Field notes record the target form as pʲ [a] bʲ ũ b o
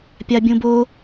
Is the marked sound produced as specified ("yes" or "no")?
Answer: yes